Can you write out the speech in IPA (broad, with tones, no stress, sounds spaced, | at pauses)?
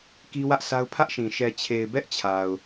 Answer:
k i˦ w ä˦ ʔ s a˦ ʊ̯ pʰ ä˦ ʔ ʃ ĩ˨ ʃ ɛ˨ t͡ɕʰ e˨ ɪ̯ b ɛ˦ ʔ t͡ɕʰ a˨ ʊ̯